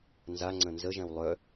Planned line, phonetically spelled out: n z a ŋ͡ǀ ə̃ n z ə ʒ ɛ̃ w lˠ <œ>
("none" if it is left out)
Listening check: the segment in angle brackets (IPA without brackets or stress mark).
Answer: œ